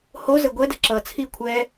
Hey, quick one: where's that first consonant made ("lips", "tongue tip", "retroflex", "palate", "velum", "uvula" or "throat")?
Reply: throat